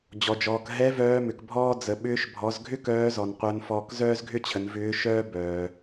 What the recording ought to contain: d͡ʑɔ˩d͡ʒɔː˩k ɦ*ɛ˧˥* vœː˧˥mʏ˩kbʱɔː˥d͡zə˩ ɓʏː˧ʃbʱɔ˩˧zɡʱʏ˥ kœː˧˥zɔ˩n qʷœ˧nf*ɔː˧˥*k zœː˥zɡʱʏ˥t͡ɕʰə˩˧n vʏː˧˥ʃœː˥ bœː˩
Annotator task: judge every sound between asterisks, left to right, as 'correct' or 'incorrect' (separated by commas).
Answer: correct, incorrect